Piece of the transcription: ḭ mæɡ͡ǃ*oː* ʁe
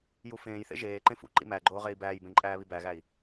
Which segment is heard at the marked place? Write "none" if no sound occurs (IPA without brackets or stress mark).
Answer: oː